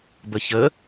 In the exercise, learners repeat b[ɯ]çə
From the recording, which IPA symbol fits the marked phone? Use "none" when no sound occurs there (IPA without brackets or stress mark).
ə